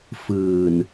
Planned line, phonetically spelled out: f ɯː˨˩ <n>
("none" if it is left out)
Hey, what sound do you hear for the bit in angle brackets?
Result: n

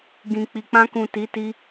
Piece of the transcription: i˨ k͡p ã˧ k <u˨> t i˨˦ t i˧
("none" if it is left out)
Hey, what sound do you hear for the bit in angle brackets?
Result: ũ˨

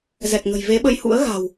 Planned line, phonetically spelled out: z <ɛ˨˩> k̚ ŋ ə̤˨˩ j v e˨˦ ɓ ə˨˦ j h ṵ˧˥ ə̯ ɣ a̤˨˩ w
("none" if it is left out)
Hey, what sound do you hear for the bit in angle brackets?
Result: ɛ˨˩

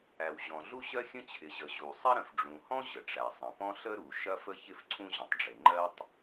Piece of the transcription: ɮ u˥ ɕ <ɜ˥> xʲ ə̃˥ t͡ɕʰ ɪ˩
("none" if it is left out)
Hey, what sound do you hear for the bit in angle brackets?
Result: ɜ˥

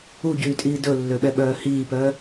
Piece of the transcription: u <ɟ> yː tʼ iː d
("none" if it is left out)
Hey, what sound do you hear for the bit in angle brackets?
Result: ɟ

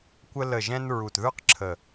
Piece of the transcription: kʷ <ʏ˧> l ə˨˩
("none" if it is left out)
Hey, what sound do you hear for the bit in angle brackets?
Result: ə˧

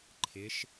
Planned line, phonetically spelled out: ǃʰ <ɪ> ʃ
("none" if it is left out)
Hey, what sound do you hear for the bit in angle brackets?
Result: ɪ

